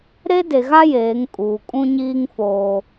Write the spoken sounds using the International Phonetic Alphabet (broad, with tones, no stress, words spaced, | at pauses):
ɾe˦de˨ ɣa˦ jeː˨˦ŋkʼuː˨ kʼũ˦ɲiː˦ŋ foː˦